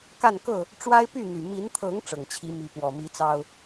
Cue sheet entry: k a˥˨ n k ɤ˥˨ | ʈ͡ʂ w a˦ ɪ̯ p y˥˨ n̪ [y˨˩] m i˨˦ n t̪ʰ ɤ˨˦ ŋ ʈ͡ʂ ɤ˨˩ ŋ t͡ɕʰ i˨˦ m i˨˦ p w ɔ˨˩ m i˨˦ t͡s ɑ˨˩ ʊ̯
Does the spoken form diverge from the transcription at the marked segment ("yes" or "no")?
no